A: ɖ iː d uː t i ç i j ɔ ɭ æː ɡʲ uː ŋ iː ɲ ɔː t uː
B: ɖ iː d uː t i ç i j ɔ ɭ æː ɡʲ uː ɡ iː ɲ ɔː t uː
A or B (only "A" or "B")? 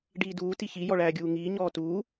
A